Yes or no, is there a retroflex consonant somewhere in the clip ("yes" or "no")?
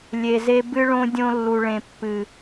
yes